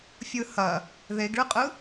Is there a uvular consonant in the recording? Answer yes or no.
yes